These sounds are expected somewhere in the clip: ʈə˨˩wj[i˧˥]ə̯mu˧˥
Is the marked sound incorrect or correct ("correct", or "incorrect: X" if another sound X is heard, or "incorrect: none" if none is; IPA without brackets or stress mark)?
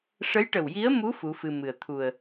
correct